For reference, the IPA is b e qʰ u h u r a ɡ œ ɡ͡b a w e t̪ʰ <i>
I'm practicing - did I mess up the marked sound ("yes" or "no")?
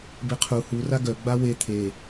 yes